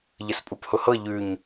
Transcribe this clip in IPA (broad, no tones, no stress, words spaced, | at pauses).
ʎəspʼuphʊhɤ ʎʉɲ